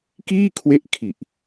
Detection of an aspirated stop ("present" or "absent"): present